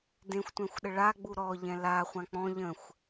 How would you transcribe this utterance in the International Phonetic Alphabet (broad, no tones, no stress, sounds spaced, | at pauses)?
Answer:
d ẽ xʷ tʷ ɛ̃ xʷ ɗ ə ɭ a ɡ͡b u ɾ ɔ ʎ ɛ̃ l a χʷ ã k͡p ɔ̃ ʎ ə̃ xʷ